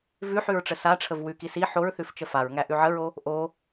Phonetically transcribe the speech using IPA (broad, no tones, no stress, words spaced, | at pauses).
vʉħʉɹʈ͡ʂə saʈ͡ʂʰəv wʉki si ħoɹθʉft͡ʃə faɹŋæʔʉ ʕəɹo | ʔo